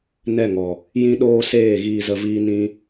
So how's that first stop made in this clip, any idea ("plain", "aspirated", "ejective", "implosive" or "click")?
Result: implosive